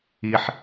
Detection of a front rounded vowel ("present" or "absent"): absent